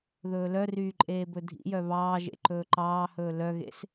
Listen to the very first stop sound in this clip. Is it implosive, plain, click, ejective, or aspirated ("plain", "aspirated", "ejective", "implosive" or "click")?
click